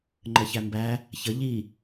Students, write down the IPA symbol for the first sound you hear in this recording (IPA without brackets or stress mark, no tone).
ŋ͡ǃ